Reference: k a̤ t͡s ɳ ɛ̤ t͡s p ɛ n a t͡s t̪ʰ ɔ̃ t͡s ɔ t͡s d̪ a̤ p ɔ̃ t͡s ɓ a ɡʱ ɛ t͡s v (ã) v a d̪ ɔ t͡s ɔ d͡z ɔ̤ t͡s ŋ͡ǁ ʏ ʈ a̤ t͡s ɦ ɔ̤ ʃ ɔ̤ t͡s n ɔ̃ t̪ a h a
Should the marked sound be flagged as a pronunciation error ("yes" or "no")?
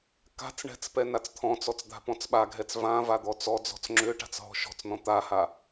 no